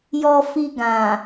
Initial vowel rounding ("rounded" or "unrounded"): rounded